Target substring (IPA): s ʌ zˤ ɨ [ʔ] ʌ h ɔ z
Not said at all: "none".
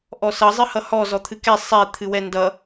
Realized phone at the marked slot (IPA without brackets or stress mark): h